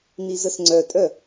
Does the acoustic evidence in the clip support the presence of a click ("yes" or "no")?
yes